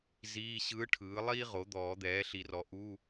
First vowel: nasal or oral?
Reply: oral